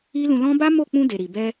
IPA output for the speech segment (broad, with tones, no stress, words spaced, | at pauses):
i˦lũ˧lɔ̃˦ ba˦mo˦˨k͡pũ˧ de˨ɾi˨bɛ˧